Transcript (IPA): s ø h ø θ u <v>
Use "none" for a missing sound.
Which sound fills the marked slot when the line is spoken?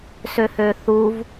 v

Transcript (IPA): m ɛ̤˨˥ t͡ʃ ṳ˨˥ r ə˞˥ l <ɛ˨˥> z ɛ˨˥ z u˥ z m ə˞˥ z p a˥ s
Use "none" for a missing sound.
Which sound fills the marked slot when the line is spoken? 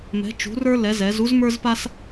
ɛ˨˥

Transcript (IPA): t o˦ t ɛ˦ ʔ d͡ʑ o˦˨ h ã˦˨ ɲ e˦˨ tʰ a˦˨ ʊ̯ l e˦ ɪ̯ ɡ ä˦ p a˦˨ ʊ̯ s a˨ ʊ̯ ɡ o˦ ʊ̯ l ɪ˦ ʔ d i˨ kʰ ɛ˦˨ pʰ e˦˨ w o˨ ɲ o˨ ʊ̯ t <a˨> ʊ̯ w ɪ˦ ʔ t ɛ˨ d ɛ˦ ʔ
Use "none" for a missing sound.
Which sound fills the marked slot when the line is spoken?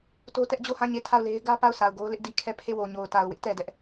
a˨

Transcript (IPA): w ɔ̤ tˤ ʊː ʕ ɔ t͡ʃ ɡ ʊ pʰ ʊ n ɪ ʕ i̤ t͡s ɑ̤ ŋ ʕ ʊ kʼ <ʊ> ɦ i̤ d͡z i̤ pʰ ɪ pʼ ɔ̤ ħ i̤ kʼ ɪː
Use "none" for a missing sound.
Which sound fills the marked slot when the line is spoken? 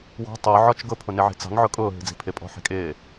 ʊː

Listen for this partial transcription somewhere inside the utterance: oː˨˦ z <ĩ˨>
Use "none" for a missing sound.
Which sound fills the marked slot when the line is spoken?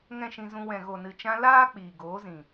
ĩ˨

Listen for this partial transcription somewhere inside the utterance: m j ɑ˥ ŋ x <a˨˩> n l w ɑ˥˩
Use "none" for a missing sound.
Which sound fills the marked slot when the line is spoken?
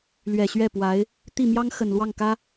ə˨˩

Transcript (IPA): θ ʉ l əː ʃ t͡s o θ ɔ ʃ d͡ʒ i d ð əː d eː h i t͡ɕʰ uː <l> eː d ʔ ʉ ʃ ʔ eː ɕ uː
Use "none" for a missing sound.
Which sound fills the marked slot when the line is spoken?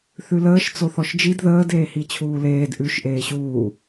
l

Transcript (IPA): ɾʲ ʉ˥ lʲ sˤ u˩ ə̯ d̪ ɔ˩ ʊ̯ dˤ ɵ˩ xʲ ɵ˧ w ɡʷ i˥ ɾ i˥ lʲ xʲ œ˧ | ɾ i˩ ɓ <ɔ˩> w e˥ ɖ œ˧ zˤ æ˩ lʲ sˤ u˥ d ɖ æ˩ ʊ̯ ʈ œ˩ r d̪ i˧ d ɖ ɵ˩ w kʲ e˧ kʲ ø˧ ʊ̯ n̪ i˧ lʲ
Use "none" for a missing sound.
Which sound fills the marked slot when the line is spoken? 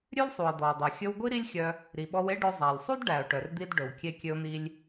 ɔ˧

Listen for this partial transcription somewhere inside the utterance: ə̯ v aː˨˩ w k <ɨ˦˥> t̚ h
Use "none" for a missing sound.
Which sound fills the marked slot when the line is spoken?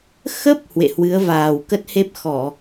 ə˦˥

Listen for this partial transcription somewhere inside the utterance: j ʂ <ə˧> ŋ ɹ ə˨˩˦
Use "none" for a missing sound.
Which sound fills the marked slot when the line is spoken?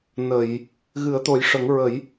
ə˨˩˦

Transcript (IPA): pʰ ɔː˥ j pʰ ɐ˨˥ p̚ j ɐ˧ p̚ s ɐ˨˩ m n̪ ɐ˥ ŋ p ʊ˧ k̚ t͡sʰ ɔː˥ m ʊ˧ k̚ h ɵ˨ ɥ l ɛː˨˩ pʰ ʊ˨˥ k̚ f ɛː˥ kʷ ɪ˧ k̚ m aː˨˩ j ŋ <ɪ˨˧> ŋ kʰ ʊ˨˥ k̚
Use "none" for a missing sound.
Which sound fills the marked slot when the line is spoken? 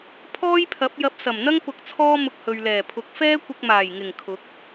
ɪ˨˩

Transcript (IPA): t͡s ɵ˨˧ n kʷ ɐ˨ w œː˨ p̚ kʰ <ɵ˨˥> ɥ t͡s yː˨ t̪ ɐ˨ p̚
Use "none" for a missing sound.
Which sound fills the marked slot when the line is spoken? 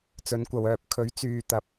ɵ˨˥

